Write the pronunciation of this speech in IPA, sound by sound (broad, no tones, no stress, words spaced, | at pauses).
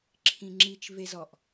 ǁʰĩŋ͡ǁit͡ʃvez ɔʔ